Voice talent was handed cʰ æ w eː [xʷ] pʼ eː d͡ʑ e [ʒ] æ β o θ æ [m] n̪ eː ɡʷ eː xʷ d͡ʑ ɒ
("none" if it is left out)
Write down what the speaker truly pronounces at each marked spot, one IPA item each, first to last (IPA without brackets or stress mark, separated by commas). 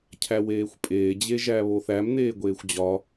xʷ, ʒ, m